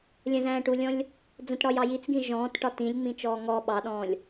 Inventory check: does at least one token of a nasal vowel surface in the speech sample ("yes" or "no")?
yes